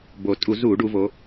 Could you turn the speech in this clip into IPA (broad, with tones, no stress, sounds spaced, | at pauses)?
b o˨˩ tʼ u˧˩˧ z u˧˩˧ ɖ u˩˧ v o˩˧